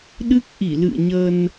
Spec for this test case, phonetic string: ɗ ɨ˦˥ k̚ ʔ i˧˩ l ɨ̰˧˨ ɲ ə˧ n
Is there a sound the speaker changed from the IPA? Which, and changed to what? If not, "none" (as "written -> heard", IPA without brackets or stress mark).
none